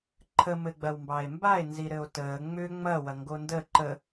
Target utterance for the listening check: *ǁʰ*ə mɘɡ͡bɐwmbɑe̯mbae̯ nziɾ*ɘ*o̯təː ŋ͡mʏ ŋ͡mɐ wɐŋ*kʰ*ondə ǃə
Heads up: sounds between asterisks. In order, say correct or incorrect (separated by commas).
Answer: incorrect, correct, incorrect